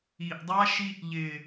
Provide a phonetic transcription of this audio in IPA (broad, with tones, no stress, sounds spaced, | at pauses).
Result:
i˨ ʔ dˤ a˦ ʃ i˦ ʔ ʎ ɪ˨